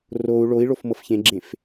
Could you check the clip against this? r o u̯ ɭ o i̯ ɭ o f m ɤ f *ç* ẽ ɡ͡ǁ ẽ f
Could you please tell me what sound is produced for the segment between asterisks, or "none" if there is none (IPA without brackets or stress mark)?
ç